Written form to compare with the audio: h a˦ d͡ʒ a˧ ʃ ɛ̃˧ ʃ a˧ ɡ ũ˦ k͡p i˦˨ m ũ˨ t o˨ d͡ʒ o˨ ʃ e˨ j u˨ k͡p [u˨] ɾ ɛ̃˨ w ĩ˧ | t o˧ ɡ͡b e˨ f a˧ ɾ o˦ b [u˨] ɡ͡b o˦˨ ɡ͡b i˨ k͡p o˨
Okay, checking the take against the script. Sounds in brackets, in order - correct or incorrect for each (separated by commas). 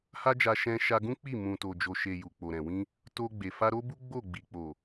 incorrect, incorrect